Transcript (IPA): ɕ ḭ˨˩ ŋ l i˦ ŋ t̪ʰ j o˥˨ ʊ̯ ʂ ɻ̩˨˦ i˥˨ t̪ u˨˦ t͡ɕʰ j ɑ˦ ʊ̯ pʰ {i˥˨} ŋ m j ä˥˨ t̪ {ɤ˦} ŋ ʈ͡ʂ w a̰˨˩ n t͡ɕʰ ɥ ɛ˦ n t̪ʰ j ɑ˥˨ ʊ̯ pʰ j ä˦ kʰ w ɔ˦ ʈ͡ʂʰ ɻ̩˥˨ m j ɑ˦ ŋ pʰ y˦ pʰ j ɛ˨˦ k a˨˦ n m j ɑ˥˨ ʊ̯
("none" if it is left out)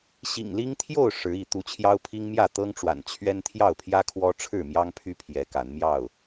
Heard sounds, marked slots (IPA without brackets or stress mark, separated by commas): i˦, ɤ˦